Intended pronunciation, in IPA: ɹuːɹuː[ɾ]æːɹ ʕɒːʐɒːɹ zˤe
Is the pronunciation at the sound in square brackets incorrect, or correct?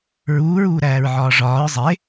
correct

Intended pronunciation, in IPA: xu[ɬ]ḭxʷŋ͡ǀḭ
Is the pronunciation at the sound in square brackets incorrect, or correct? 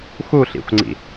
correct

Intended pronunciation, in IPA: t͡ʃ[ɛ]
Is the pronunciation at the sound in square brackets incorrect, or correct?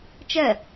correct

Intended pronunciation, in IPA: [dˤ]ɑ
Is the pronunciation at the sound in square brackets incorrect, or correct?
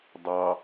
correct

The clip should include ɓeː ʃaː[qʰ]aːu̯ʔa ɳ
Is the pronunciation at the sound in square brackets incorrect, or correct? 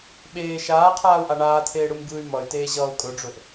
correct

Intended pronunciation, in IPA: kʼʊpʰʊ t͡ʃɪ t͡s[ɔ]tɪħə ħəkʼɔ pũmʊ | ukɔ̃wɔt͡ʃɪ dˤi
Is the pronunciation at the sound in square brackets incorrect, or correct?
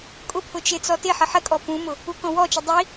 correct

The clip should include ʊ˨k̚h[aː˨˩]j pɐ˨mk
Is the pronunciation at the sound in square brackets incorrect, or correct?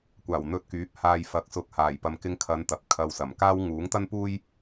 correct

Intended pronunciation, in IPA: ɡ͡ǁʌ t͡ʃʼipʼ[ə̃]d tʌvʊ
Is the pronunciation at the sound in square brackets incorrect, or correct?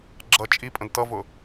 correct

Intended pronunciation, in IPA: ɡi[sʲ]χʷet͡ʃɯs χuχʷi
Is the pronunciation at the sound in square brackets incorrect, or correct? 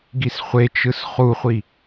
incorrect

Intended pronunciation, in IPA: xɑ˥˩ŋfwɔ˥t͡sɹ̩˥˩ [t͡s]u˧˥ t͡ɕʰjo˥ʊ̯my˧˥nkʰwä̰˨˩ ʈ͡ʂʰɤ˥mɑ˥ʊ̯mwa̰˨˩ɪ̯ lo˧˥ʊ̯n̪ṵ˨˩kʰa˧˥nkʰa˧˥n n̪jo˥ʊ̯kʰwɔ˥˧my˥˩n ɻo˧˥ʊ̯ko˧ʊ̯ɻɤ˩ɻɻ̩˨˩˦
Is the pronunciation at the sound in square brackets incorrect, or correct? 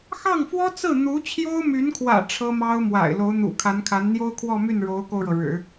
incorrect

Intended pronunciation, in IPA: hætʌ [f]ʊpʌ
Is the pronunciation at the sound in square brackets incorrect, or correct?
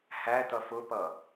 correct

